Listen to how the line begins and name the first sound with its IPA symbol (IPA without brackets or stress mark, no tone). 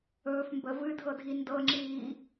ɵː